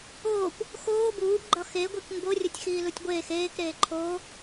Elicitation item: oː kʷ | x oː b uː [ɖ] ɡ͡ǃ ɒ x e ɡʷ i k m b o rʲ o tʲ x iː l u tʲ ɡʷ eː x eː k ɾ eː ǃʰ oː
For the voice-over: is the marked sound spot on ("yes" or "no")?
no